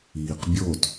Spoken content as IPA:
iː q bʲ o t

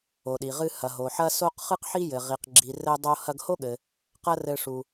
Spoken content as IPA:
o˩ ɗ i˩ ʁ ɨ˧ h ɐ˩ ɦ o˩ ħ ɐ˥ s o˥ q χ ɨ˥ q ħ i˥ j ɘ˩ ʁ i˩ q ɡ͡ǁ i˩ r ɘ˧ dˤ o˧ h ɐ˧ ɡ h o˥ ɠ ɘ˩ | q ɐ˥ r ɘ˧ ʂ u˩

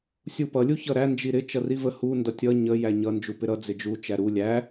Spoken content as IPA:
sʲ u p ʌ lʲ u ç ʌ ɾ æ n d͡ʒ i ɾ ɪ t͡ʃ ʌ r i v ə h u n d ʌ tʲ ʌ ɲ ə j æ ɲ ʌ n d͡ʒ u p ɪ ɾ ʌ d͡z ɪ d͡ʒ u t͡ʃ æ ɾ u lʲ æ

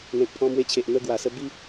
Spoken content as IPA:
n̪ ẽ˨ k̚ pʰ ɔ̃˧ m w e˧ t͡ɕʰ e˨ ʔ n̪ ə˧ ɡ w a˨˩ s ə˧ b i˦

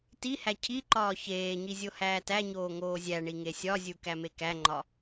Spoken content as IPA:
t i h æ cʰ i ǃ ɒː ç eː ɲ i zʲ o h æː t æ ɲ oː ŋ oː zʲ æ ɳ i ŋ e sʲ ɒ zʲ u k æ m e k æ ŋ͡ǃ ɒ

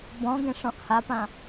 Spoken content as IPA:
b ɔ̃ ɡ ẽ ʂ ɔ̃ ʔ h a p ã

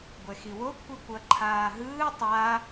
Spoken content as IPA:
ɡʷ ɛ x i w o kʷʰ i kʷ ʌ ǃʰ aː ɦ ɯː tˤ a

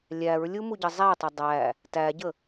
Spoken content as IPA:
lʲ æ ɹ lʲ u m u ɟ ə zˤ æ tˤ ə dˤ æ | t æ ɟ ə

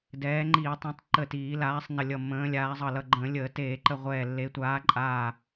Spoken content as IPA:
d ɛː˨˦ ŋ͡ǃ iː˧˩˧ tˤ ə̃ː˨˦ tˤ ǃ əː˧˩ t iː˧˩˧ l aː˨˦ sˤ n ə˧˩ lʲ ʌ˧˩ mː ə̃ː˨˦ lʲ aː˨˦ zˤ ʌ˧˩ l ʌ˧˩ ɡ͡ǃ ə̃ː˧˩˧ lʲ əː˧˩˧ t eː˧˩˧ ǃ ə˧˩ ʁʷ ɛː˧˩ lː e˨˦ tʷ aː˨˦ ǃʼ aː˧˩

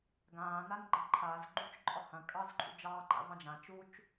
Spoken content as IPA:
ɡ ãː n a n ɡ͡ǃ ɐ̃ ǃʰ a z ɡ͡ǃ u t͡ʃ ǃʼ ɒ h ɐ̃ kʼ ɑ z ǃʼ ṵ d͡ʒ ɑː ǃ a̰ v ɑ̃ d͡ʒ ã t͡ʃ u t͡ʃ

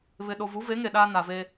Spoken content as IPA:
β ɪ˨ ɗ o˨ v u˨˦ v e˨˦ ŋ e˨ ɗ aː˦ n a˨ v e˦

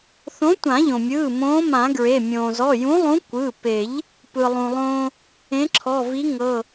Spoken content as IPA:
θ õ˨˥ tʷ ã˨˩˦ ʎ õ˩ mʲ ɯː˩˧˩ m õː˨˥ m ã˨˩˦ ɡ ɹ e˩˧˩ mʲ õː˩ z ɔ˩˧˩ j ũ˨˥ lˠ ũ˨˥ kʷ ɯ˩˧˩ p e˨˩˦ ʎ | p ɯ˩ lˠ ũ˩ lˠ õː˦ | ẽ˨˥ ǁʰ ɔ˩˧˩ v i˨˥ ŋ ɤ˩˧˩

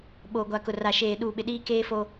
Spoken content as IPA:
ɓ oː˨ ɡʷ a˨ k ʊ˨ r a˨ ʃ eː˨ ɗ uː˨ ɓ ɪ˨ ɗ iː˦ k eː˦ f o˦

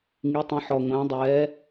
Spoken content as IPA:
ŋ i˩˧ tˤ ĩ˩˧ ħ ɔ˩ ŋʷ æ̃˩˧ dˤ ɛː˩˧

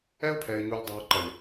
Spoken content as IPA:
ɛ˦ ʊ̯ pʰ ɛ˨ ɪ̯ ɲ u˨ lʲ dˤ a˨ ʊ̯ ǃ ɐ˨ lʲ

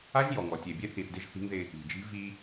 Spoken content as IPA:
a˦ ʒ j ɔ˨ ŋ ɔ˨ tʲ e˨ bʲ e˦ θ i˨ θ d ɪ˦ ʒ θ i̤˦ ŋ ð ɪ˦ | i̤˨ d͡ʒ i̤˦ v i˦

